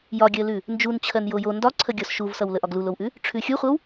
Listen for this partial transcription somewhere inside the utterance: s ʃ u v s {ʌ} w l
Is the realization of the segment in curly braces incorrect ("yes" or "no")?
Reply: no